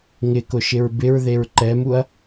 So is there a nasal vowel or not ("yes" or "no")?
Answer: no